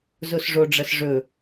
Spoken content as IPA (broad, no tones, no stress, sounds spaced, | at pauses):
z o s ʐ o ɖ͡ʐ ɐ s ʐ ɵ